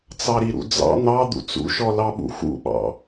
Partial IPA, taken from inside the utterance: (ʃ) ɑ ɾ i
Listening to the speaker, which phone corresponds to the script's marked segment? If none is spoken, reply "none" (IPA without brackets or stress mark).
t͡s